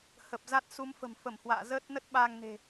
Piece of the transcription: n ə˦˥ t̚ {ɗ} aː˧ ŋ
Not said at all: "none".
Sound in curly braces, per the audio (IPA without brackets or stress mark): ɓ